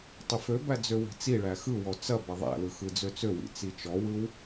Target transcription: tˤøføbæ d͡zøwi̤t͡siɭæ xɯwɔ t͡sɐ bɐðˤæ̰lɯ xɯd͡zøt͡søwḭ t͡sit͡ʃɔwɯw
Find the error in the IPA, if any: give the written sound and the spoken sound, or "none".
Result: none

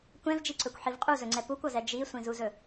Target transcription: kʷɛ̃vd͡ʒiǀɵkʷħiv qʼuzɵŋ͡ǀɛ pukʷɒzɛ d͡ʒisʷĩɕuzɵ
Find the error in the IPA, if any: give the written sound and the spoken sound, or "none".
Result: ɕ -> z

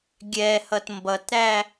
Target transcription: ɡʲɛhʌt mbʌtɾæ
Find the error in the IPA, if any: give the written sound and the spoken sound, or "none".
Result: none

